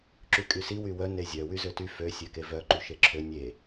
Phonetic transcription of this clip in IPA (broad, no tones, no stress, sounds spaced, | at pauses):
ǁ y kʼ y s i w y w œ n e zʲ œ w y z ø t y f ø sʲ ø k e v œ ǃ y ʃ e ǁʰ ø nʲ e